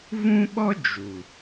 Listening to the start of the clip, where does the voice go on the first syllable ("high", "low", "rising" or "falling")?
high